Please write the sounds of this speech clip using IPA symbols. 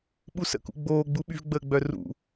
ɓ u s ə̰ k ṵ ɡ͡b oː ɡ͡b u ɓ y v ɡ͡b əː ɡ͡b œ r ṵ

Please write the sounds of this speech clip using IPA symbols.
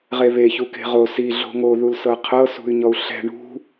ʁ e β e ç u k e̤ ʁ o s i ɮ o̤ ŋ o ð u l s ɤ qʰ ɤ s ṳ y̯ ɲ ɔ u̯ ɬ ɛ̤ ɳ ṳ

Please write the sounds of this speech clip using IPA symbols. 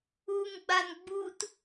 u ŋ ɡ͡b a n ɡ͡b u t

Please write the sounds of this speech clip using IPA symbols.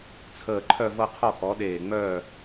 t͡sʰ əː˧˩ ǃʰ œ˥˨ v ɤ˥˨ qʰ ɔ˥˨ k ɔ˩˥ ɗ eː˧˩ ŋ͡m œː˥˨

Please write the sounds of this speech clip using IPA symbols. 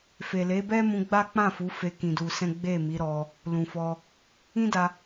f e˨ l e˨˦ b ɛ˦ m ũ˧ ɡ͡b a˦ k͡p ã˦˨ f u˨˦ f e˧ k ĩ˧ d u˧ s ɛ̃˦ ɡ͡b e˦˨ m i˨˦ ɾ ɔ˧ | l ũ˨ f ɔ˧ | ĩ˦ d a˧

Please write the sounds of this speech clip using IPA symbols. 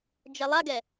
d͡ʒ ɛ lˠ a ɡ ɛ

